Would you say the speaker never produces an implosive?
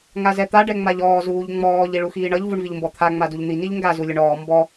yes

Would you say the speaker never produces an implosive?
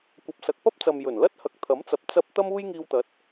yes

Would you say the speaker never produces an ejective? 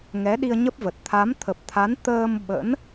yes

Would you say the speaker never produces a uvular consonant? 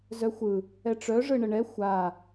yes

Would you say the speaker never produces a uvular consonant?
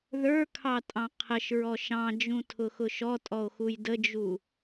no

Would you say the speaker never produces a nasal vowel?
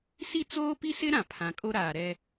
no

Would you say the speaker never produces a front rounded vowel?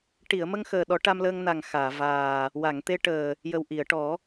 yes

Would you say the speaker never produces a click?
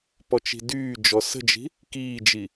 yes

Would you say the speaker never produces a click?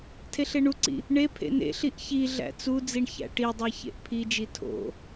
no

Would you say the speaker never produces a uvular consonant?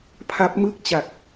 yes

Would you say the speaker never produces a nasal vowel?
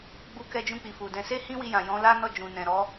no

